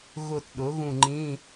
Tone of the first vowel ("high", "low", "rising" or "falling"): falling